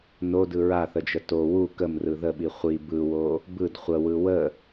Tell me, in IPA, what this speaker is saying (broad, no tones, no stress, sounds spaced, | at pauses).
n o d ɯ ɹ a θ ə d͡ʒ ə t o w u k ə m r ɯ ð ə ɓ i χʷ i b ɯ w o | b ɯ d χʷ ə w ɯ w ə